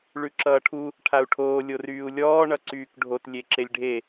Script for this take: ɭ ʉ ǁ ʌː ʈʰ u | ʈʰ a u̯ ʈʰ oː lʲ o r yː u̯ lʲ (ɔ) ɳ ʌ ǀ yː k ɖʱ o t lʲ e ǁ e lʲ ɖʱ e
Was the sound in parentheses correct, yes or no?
no